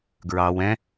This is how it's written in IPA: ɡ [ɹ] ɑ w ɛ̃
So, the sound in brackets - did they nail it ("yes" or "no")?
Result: yes